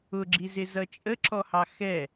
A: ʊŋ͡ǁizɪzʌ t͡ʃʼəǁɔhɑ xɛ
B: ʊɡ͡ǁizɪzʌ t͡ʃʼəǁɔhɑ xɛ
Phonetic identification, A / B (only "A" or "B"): B